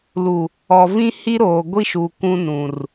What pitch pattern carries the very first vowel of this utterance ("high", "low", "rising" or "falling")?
low